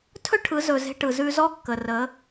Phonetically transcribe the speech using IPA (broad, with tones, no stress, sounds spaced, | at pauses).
tʰ ɵ˥ ʈʰ ɯ˩˧ z ɵ˩ z e̤˧ ʈ ɯ˩ z ʉ˧ z ɔ˥ kː ə˩ r ə˩˧